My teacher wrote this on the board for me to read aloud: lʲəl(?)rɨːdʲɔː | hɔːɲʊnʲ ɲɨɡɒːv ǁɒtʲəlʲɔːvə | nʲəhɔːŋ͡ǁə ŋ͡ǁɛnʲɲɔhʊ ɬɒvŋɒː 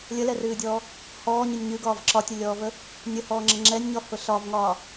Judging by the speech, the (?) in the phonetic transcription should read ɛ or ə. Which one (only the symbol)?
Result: ɛ